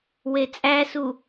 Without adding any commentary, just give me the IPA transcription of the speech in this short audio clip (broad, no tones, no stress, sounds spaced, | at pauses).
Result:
w e t͡sʼ æ s u